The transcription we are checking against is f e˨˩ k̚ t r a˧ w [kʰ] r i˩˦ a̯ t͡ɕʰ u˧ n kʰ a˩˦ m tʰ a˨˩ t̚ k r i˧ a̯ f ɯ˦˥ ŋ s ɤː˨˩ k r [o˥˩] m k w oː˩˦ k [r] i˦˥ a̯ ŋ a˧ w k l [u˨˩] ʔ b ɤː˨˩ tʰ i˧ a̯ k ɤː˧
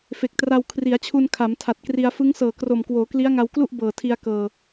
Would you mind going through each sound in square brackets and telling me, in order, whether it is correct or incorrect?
correct, incorrect: o˨˩, incorrect: l, incorrect: u˥˩

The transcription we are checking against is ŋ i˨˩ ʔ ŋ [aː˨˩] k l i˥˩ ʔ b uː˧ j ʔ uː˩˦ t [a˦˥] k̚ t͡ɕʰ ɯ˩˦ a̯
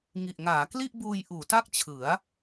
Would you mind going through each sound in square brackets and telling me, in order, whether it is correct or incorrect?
incorrect: aː˩˦, incorrect: a˥˩

